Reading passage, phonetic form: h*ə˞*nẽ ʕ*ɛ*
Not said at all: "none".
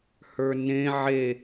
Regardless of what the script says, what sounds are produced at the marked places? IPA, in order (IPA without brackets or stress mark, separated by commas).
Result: ə˞, e